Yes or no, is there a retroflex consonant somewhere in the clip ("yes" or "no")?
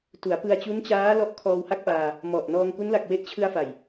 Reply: no